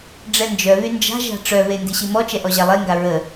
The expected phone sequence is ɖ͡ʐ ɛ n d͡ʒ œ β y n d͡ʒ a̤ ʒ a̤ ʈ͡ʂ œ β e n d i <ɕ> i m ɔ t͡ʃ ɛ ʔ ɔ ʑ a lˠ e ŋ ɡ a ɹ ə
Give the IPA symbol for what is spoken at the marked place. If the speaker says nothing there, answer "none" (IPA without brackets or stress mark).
ɕ